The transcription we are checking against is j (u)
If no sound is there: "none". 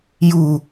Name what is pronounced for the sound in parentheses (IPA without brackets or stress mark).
u